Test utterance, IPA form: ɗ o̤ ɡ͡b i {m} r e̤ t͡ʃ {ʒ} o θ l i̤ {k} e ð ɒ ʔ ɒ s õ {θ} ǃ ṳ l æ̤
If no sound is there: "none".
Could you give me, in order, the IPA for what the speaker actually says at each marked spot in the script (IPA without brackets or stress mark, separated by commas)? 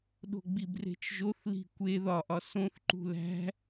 b, ʒ, kʷ, θ